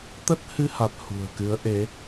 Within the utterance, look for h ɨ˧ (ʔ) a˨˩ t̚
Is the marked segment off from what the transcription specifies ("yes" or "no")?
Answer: yes